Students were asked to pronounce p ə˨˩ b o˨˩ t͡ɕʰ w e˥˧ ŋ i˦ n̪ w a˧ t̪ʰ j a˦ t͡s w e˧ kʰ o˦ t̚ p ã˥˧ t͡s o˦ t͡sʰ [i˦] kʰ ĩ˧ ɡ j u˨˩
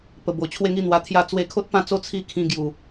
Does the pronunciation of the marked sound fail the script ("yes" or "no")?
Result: yes